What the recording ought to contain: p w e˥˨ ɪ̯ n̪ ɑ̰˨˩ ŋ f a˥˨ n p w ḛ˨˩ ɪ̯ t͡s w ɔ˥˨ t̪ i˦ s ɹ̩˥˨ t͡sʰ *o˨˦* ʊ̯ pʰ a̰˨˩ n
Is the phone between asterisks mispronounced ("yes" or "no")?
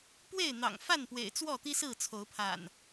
no